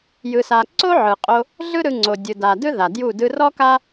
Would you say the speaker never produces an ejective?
no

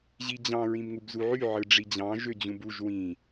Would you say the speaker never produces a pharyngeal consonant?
no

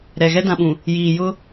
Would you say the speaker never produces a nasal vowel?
no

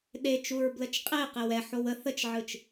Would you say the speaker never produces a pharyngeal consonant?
no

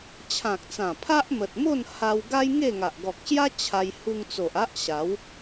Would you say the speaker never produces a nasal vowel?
no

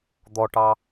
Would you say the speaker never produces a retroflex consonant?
no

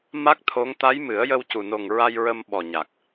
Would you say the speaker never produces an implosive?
no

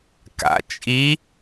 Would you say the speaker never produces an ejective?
no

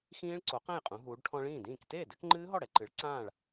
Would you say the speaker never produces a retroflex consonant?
no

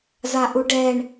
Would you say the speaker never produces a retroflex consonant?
no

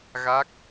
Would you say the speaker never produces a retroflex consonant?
yes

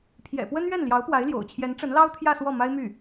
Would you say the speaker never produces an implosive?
yes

